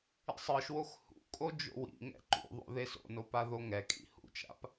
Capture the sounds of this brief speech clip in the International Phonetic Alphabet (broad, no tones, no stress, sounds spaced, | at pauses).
ḭ sˤ ɯ ʃ w o x h ṵ kʼ o d͡ʒ o̰ w ḭ ŋ ɛ̰ ǃ ṵ ðˤ o̰ ð e s o̰ n o p a ð o ŋ ɛ kʼ ḭ h ṵ t͡ʃ a̰ p